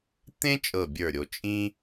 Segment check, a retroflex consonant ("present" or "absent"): absent